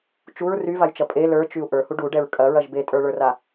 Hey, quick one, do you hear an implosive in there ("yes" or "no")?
no